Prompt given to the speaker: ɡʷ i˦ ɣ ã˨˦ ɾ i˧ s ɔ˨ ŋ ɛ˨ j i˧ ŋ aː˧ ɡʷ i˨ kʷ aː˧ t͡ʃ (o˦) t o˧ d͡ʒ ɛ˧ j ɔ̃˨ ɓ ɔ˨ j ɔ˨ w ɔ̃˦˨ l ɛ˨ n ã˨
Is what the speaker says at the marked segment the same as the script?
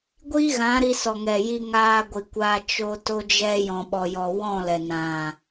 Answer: no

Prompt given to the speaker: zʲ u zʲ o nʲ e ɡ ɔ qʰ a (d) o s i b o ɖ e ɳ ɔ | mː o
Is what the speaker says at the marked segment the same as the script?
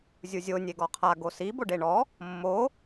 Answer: no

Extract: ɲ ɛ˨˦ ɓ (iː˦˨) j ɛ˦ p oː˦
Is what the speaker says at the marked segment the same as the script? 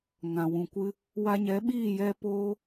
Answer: yes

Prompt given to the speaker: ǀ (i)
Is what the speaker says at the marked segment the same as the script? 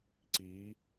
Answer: yes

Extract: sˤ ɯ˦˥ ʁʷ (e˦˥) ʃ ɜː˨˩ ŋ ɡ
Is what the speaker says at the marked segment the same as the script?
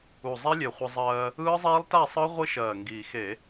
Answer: no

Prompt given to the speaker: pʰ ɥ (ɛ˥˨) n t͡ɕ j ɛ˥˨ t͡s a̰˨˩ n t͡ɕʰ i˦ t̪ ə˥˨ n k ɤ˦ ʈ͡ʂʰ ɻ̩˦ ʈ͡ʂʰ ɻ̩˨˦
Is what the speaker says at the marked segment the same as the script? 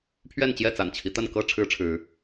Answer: yes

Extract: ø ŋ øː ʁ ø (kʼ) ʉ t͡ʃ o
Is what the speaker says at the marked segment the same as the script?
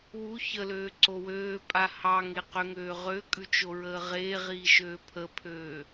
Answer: yes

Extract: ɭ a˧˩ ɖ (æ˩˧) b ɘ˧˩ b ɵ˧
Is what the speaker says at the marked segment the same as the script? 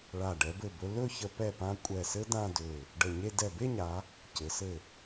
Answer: no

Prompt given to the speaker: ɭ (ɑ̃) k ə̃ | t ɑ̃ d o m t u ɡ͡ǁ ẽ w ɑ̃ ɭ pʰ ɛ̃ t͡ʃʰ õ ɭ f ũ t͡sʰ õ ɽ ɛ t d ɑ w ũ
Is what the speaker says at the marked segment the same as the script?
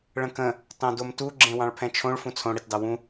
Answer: no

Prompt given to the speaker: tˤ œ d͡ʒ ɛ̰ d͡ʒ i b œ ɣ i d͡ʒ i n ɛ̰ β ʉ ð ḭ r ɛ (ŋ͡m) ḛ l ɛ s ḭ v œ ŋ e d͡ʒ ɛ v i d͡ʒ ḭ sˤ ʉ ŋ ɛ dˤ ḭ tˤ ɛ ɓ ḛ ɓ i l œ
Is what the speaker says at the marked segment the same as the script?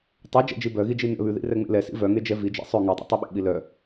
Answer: yes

